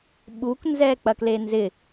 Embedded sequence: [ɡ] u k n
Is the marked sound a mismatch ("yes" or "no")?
yes